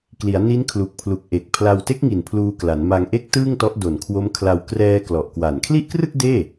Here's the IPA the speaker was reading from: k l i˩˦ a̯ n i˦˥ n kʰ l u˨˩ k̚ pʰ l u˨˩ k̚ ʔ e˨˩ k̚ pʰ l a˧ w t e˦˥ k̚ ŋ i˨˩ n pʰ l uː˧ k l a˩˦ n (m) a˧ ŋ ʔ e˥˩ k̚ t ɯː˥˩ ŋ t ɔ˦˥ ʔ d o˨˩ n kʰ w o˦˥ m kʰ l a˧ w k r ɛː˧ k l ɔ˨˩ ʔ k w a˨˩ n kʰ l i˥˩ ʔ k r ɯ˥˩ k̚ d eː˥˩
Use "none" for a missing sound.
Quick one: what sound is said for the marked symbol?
m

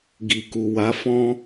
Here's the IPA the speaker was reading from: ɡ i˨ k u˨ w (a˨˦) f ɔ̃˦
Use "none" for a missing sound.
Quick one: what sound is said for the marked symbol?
a˨˦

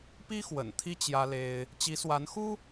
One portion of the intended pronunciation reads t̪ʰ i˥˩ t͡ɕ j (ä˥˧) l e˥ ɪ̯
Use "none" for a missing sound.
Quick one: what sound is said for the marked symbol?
ä˥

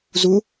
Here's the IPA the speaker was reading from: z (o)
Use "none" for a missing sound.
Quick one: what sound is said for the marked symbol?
u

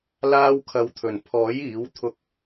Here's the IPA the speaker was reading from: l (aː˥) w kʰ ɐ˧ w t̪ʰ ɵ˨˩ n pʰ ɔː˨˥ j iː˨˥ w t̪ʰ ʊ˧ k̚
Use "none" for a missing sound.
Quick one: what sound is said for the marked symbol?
aː˥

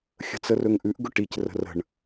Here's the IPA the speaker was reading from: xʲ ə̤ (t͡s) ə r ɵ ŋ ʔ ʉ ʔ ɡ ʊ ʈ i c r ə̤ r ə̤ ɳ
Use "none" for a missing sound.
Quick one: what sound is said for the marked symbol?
t͡s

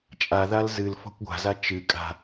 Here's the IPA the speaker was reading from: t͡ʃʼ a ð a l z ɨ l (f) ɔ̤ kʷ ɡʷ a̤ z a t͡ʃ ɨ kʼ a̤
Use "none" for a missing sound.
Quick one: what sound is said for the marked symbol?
f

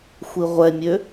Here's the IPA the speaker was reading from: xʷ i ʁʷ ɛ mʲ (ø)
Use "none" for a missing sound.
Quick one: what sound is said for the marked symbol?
ø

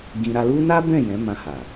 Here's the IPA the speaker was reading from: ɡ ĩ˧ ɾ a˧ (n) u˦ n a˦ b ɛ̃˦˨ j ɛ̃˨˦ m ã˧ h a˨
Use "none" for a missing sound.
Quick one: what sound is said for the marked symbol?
l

